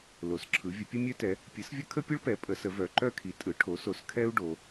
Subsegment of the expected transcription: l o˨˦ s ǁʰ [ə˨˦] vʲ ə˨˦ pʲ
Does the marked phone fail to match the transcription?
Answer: yes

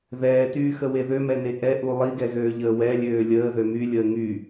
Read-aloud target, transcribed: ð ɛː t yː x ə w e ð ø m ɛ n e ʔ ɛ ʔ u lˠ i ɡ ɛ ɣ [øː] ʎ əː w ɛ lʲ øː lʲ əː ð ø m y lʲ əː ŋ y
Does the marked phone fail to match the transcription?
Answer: no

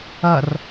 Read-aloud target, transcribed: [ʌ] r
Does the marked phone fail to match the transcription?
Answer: no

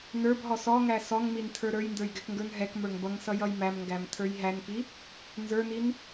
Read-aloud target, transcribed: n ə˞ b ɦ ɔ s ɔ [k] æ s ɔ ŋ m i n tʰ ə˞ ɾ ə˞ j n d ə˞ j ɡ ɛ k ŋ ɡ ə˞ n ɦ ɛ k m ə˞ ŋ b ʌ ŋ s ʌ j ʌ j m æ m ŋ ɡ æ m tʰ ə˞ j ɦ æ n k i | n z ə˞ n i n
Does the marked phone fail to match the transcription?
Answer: yes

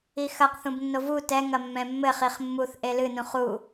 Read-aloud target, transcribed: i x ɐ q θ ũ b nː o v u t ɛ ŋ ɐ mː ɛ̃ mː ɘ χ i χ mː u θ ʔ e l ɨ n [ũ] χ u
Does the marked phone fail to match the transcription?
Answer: no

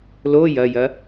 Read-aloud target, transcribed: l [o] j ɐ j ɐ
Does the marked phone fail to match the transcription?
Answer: no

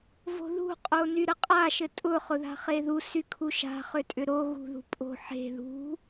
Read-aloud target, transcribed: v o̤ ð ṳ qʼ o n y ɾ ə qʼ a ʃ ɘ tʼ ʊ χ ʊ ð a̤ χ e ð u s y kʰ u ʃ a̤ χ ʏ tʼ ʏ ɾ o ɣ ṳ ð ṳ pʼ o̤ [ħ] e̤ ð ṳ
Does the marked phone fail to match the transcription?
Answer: no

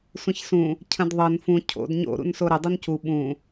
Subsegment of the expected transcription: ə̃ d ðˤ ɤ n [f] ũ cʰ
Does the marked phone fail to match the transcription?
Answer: no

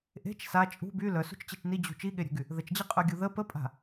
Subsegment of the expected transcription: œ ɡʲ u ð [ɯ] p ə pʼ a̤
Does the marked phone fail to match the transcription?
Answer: yes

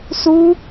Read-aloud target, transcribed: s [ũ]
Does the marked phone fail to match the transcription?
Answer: yes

